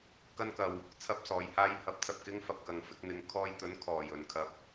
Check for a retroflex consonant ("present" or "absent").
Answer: absent